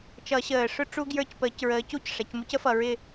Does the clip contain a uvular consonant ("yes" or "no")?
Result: no